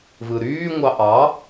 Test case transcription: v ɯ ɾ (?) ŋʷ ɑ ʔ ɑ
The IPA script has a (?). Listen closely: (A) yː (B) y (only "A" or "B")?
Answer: A